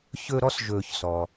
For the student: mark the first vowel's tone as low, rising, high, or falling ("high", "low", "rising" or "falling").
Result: high